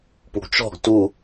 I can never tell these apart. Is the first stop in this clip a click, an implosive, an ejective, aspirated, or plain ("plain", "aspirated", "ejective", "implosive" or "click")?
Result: plain